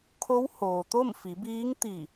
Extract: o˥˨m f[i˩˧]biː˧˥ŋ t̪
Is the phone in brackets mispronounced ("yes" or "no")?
no